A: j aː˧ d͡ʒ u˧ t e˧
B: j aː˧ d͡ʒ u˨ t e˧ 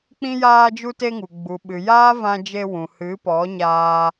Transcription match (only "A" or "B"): A